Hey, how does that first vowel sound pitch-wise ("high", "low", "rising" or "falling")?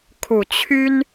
low